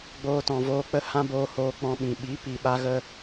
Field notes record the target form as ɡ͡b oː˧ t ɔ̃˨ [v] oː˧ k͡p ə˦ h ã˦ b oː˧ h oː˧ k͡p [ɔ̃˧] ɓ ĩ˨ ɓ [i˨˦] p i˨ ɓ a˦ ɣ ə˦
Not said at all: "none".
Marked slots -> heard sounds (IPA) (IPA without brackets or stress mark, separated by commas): v, ɔ̃˧, i˨˦